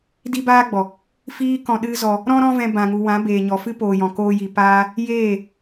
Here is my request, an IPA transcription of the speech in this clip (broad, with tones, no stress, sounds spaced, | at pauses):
d i˦ b aː˦ ɡ͡b ɔ˨ | f iː˦ k ɔ̃˧ ɗ ɨ˦ z ɔ˧ | ɾ ɔ̃˦ ɾ ɔ̃˦ v ɛ̃˧ b ã˨ ŋ u˨ w ã˨˦ b eː˨ ɲ ɔ˨ f ɨ˦ p oː˨ j ɔ̃˨ k oː˧ j i˨ p aː˦ | j eː˦˨